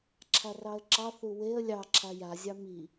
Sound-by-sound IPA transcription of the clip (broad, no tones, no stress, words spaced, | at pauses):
ǁʰarɑə̯ǁɑ θuweə̯ lʲɑ ǁʰaja zʲɑmi